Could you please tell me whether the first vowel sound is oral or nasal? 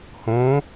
nasal